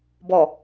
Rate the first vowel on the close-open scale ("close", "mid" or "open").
mid